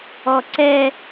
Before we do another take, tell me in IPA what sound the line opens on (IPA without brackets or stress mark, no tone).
ɔ